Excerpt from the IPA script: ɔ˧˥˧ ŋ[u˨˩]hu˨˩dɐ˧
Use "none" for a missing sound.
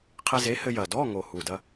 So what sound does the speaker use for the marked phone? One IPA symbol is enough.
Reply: o˨˩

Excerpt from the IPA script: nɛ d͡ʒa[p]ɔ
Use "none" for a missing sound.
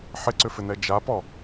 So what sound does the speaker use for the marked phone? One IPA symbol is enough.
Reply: p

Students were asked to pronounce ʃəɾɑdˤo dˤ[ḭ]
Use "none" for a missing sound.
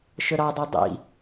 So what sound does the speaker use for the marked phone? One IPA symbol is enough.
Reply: ḭ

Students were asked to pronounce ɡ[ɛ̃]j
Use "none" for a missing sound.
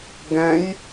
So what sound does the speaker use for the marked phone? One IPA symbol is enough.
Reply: ɛ̃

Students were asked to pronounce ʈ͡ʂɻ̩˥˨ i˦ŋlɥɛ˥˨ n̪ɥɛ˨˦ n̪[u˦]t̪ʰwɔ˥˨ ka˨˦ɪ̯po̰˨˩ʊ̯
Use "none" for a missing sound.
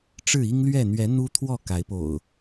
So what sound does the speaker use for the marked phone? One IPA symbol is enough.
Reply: u˦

